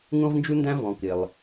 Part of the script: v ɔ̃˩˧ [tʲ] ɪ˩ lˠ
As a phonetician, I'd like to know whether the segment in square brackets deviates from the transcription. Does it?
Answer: yes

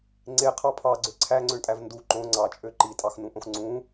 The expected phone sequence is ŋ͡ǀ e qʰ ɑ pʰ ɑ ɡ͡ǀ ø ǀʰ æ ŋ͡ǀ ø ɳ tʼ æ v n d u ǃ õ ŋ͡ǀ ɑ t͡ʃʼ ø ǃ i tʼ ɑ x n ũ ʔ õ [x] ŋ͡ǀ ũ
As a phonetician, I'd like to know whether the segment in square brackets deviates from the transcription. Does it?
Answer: no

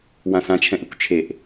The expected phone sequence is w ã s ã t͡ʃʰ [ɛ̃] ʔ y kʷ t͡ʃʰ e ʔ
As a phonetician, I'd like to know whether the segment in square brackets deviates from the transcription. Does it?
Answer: no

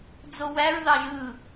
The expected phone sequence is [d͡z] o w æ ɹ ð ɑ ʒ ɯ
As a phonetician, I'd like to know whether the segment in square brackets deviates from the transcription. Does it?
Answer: no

